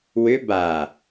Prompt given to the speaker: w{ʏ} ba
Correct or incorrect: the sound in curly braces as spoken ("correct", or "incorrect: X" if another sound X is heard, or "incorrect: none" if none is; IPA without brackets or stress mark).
correct